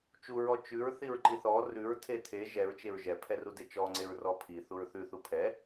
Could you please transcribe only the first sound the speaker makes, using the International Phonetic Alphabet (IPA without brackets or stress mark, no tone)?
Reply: t͡ʃ